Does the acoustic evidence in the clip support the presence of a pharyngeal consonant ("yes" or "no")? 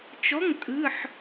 yes